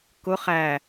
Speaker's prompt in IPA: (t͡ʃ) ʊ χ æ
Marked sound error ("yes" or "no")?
yes